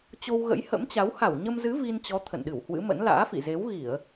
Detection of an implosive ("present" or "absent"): present